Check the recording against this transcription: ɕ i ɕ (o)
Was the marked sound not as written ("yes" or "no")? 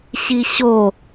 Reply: no